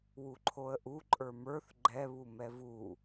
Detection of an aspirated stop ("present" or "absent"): present